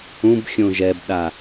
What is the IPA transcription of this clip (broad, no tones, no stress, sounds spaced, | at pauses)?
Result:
ũ b xʲ õ ʒ ɛ b ɗ a